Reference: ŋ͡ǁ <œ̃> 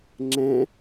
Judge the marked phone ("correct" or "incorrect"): incorrect